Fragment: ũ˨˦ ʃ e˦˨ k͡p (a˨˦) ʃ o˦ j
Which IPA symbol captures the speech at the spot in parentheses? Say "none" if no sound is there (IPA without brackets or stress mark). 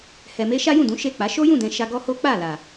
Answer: a˨˦